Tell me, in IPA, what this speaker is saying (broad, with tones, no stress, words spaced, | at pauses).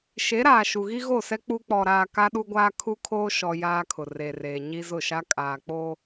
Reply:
ʃe˨˦ɾaː˨ ʃu˨ɣi˦ɣo˦˨sɛ˦ k͡pu˦ k͡pɔ˨ɾaː˨ ka˦ɗu˦ɡʷaː˦ kʰu˦kʰoː˦ʃɔ˨ jaː˦kʰʊ˨ re˨reː˨ɲi˦ zʊ˦˨ʃa˦ kʼaː˨k͡poː˦